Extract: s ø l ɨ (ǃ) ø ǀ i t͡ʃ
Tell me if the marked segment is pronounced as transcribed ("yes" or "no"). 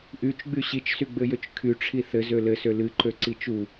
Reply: yes